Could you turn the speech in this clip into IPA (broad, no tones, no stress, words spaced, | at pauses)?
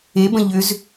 ebə̃ ʎʏz